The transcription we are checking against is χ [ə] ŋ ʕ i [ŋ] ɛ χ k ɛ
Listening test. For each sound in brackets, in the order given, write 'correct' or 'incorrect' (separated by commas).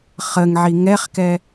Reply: correct, correct